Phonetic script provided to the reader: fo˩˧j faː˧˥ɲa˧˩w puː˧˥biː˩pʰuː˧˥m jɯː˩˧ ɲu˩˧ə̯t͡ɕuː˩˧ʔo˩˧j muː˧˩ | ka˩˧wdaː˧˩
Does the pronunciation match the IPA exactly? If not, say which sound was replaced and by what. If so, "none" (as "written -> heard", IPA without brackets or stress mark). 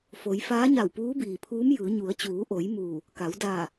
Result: none